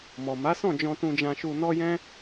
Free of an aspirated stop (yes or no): yes